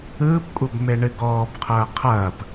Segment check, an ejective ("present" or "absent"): present